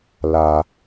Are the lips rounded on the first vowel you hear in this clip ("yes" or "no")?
no